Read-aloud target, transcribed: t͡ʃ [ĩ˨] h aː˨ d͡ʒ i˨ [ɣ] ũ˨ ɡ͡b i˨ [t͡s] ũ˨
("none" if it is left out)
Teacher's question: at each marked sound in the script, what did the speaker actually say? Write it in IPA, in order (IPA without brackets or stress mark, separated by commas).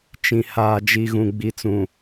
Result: ĩ˨, ɣ, t͡s